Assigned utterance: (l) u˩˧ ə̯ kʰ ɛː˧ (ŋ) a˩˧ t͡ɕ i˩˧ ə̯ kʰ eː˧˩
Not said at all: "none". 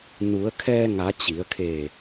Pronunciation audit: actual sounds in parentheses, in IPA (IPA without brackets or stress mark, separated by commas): n, ŋ